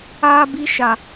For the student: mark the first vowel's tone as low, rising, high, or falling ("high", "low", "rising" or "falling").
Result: high